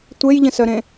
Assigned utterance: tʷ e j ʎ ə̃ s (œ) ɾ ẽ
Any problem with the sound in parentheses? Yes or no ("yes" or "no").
no